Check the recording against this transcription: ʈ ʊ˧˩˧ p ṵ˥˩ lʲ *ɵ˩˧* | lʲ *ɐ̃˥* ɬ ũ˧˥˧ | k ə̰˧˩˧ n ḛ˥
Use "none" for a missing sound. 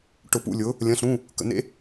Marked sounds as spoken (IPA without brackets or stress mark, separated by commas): ʊ˩˧, ɐ̃˧˥˧